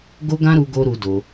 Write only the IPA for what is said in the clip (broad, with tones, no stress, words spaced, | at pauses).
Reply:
ɡo˦ɡã˦ ɾu˦ɡo˦ ɾu˧ do˧